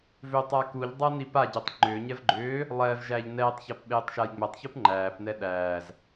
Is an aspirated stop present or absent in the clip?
absent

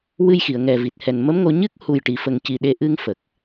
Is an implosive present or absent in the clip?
present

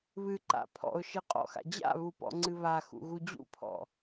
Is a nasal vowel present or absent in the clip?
absent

